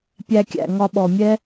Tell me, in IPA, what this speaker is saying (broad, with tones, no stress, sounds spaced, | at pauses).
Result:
pʲ æ˧ kʲ æ̰˨ ŋ ɒ˧ ɓ ɔ˨ mʲ ɛ˦